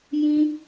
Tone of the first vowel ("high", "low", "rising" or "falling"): high